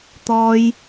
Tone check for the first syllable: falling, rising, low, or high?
high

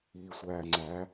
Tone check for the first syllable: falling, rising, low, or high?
low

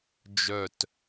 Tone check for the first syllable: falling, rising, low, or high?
falling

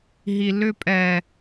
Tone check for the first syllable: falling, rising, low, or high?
low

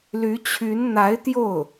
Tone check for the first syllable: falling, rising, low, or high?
rising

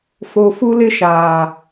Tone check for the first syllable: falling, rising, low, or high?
low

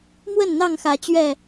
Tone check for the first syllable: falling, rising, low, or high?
falling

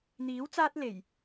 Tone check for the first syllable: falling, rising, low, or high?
rising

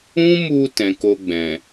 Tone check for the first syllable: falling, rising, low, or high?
high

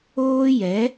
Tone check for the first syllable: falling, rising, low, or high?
high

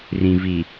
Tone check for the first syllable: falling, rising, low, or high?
low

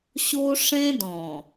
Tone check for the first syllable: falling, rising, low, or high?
high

